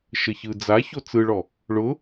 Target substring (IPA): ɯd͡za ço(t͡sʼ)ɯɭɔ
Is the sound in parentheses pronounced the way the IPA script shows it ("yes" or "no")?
no